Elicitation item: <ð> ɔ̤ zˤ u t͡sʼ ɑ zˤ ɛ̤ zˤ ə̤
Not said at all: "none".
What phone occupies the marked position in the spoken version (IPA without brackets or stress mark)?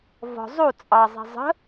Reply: v